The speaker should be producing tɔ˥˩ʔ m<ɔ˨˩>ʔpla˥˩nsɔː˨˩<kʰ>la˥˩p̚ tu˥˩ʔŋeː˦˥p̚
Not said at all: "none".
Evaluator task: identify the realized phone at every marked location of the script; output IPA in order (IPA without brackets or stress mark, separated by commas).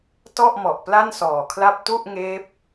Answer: ɔ˨˩, kʰ